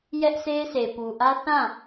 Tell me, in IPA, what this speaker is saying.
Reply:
j ɛ˦ ʔ sʰ e˦ ɪ̯ sʰ e˨ p u˨ ʔ ä˦ θ ã˦˨

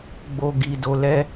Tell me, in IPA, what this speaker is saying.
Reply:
ɡ͡b o˧ ɡ i˧ d o˧ l ɛ˦

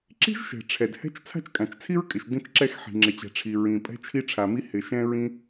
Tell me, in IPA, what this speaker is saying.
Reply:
ǁ i̤˥ ʒ ʃ ɛ̤˩ ʈ͡ʂʰ ɛ˩ d h ɛ̤˥ t͡ʃ t͡sʰ a̤˥ t͡ʃ kʼ ã˩ t͡ʃ t͡sʰ i˥ ɹ kʼ ɪ˩ ʃ d ĩ˥ t͡ʃ ǁ ɛ˥ x ħ i̤˩ ŋ͡ǁ ɪ˩ t͡ɕ ɛ̤˩ ʈ͡ʂʰ i˩ ɹ ĩ˩ pʼ ɛ̤˥ t͡ʃʰ i˥ ʈ͡ʂʰ a˩ m i˥ h ɪ˩ ʃ ɛ̃˥ ɹ ĩ˥

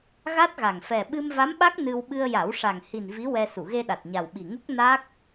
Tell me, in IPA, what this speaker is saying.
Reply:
ɣ a˦˥ t̚ ɣ a˨˩ ŋ f ɛ˨˩ ɓ ɨ˧ m v a˧˥ m ɓ a˦˥ k̚ n ɨ˧ w ɓ ɨ˧ ə̯ j a˨˩˦ w ʂ a˨˩ ŋ h i˨˩ n v i˧˥ w ɛ˧ s u˨˩˨ ɣ e˧ ɗ a˨˩ t̚ ɲ a˨˩ w ɓ i˨˩ ŋ u˦˥ k̚ n a˦˥ k̚

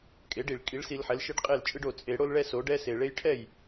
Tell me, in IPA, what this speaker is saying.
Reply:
kʼ e˩˥ ɖ i˨˩ ɭ kʼ i˩˥ ɭ s i˨˩˦ l ħ ɛ˩˥ l ʃ e˦ ɖ qʼ e˥˩ l t͡ʃʼ ɯ˦ ɖ o˨˩ t͡sʼ e˨˩˦ ɽ o˦ l ɭ ɛ˦ s o˩˥ ɖ ɛ˦ s e˨˩ ɭ e˦ j ʈʰ ɛ˥˩ j

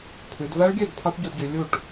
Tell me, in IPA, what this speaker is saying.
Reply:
pʰ ʉ˩˧ d v æ˦˥ ɭ ɡʲ ø˥˩ d pʰ ɑ˦˥ ʈ ɟ u˧ d ɟ y˩˧ lʲ u˥˩ ʈ

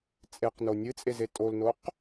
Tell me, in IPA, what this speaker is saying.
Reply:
t͡sʼ e q n o nʲ ɨ t͡sʼ e z e tʼ o l n o q

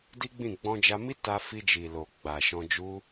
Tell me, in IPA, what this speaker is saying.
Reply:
d i˦ ɡ͡b ĩ˦˨ ɡ͡b ɔ̃˧ d͡ʒ a˧ m i˦ t a˧ f i˧ d͡ʒ i˨ l o˨ ɡ͡b a˨ ʃ ɔ̃˧ d͡ʒ u˦

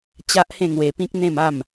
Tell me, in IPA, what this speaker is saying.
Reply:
t͡ɕ a˦ ʔ h ẽ˥˧ ŋ w e˧ p ĩ˦ k̚ n̪ ẽ˥˧ m a˥˧ m

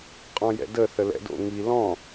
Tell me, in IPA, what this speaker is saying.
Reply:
qʼ ɔ̃ j ɛ̰ d ə θ ə l ɛ̰ d o̰ ŋ i l ɔ̃

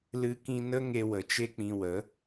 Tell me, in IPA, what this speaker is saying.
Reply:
l ɨ˧ k ĩ˧ n ə˦ ŋ e˧ w ə˨ t͡ʃ e˦ k͡p ĩ˧ w ə˨˦

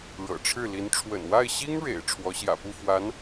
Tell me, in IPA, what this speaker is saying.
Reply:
ɻ ɤ̰˨˩ ʈ͡ʂʰ ɻ̩˥˩ l i˧˥ n ʈ͡ʂʰ w ə̰˨˩ n w a˥˩ ɪ̯ ɕ i˥ ŋ ɻ ḛ˨˩ ɪ̯ ʈ͡ʂʰ w ɔ˧˥ ɕ j ä̰˨˩ p u˥˩ f w a˧˥ n

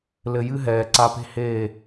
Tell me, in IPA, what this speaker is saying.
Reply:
l ɘ˧ j ɨ˦ ɦ ɛː˨ ǀ a˧ p e̤˦ h eː˦˨

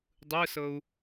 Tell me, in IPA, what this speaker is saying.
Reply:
dˤ ɯ s ɤ u̯

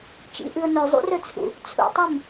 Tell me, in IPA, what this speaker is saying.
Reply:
t͡ʃ ḭ ʔ ɨ ʊ̯ n ɵ zˤ ṵ r ɵ t͡sʰ ṵ | t͡sʰ ṵ tˤ ʉ m

